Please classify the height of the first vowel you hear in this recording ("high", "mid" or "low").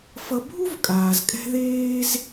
mid